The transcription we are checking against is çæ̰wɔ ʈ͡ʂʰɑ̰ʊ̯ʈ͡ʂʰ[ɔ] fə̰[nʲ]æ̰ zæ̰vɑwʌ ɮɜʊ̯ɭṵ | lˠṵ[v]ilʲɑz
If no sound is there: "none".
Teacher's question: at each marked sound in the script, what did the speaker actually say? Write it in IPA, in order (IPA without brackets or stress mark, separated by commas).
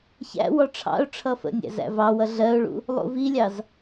ʌ, nʲ, v